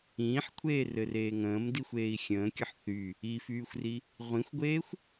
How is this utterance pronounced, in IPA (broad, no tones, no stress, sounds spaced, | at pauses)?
ĩː ħ kʷʰ eː r ɘ r eː ŋ ə̃ː m d i xʷ eː i̯ xʲ ə̃ː kʲ ʌ ħ θ y | i f yː xʷ r i | ʁʷ ĩ xʷ ɡʷ eː xʷ